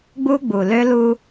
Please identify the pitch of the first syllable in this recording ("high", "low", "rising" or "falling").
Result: high